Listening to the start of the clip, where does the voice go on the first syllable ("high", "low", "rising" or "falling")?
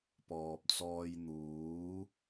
low